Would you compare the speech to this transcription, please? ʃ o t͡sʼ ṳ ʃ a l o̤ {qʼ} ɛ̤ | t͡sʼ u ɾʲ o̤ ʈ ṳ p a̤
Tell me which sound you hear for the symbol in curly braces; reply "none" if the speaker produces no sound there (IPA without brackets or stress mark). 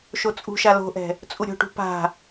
ʔ